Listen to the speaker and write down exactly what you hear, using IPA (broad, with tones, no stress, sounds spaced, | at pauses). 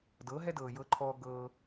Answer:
d ɤː˩˥ ɦ ɛ˥ d ɤː˩ j ɤ˧ ǃʰ ɔː˧ ɡ ɤː˧